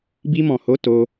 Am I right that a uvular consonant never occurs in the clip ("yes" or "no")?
yes